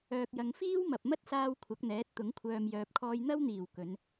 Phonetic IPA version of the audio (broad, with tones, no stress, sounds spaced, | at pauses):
œː˨ k̚ j ɐ˨ ŋ f iː˥ w m ɐ˨ p̚ m ɐ˥ t̚ s aː˧ w kʷʰ ɐ˨˥ k̚ n̪ ɛː˨˥ t̚ t̪ ʊ˨˥ ŋ kʷʰ œː˨ m j œː˨ p̚ kʰ ɔː˧ j n̪ ɐ˥ w n̪ iː˨˩ w k ɵ˨˧ n